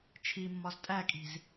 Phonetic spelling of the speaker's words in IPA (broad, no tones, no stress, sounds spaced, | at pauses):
t͡ʃʰ i mː ɒ z tʼ æ kʼ i̤ z